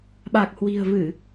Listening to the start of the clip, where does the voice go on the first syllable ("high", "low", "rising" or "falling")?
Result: low